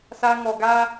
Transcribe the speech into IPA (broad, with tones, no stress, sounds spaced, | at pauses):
s a˧ ŋ ɔ˨˩ ɡ a˦